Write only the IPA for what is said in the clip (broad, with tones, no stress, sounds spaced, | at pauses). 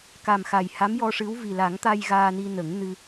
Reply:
k a˨˩ m x a˨˩ j h a˧˥ m j ɔ˧ ʂ ɨ˧˥ w v i˨˩ l a˨˩˦ ŋ t̪ a˧ j ɣ aː˧ n i˧ n ə˨˩˦ ŋ n ɨ˧